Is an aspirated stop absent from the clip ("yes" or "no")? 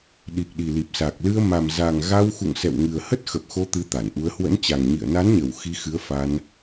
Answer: yes